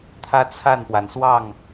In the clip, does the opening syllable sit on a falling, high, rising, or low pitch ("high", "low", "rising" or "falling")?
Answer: high